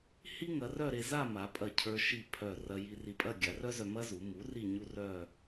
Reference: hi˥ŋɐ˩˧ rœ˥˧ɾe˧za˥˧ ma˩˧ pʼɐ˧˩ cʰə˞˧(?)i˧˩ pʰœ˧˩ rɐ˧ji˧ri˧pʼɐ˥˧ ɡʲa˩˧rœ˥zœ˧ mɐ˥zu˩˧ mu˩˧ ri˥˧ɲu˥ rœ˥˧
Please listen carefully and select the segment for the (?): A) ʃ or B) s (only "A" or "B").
A